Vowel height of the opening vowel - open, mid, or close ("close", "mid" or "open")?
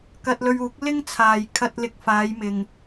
open